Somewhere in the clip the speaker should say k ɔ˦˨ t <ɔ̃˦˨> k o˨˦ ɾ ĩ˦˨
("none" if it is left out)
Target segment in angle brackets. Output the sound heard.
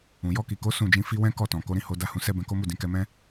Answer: ɔ̃˨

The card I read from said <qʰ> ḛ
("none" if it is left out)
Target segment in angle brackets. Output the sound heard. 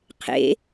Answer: qʰ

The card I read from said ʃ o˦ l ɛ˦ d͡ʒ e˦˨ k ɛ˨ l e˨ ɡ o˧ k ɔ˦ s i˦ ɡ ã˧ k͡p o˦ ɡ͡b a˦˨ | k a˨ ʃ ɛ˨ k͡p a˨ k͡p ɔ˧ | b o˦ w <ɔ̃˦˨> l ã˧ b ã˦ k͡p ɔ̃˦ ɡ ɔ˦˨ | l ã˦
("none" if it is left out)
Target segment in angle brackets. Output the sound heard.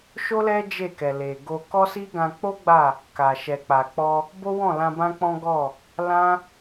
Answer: ɔ̃˦˨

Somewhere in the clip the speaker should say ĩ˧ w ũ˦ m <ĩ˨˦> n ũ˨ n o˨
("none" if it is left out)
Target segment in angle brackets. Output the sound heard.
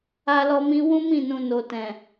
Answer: ĩ˦˨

